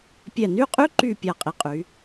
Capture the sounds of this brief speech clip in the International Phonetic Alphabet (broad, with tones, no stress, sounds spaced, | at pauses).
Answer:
pʲ ɛ˧˩ n y˥˧ qʼ y˥ ǃ y˥˧ pʲ a˧ qʼ i˩˧ qʼ y˩˧